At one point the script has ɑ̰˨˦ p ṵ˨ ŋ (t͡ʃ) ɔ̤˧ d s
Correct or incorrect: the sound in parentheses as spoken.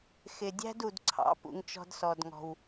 correct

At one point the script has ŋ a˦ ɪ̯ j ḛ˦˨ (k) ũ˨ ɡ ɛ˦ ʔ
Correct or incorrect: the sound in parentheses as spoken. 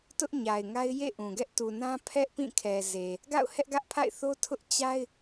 incorrect: ʔ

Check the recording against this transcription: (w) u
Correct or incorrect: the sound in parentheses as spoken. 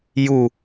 incorrect: j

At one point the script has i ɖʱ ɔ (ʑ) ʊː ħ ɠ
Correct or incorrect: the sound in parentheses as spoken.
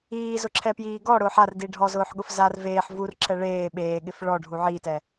incorrect: z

